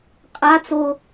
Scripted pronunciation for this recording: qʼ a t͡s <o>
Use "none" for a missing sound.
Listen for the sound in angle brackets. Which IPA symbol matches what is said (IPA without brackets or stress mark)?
o